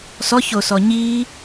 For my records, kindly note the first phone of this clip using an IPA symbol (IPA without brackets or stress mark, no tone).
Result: s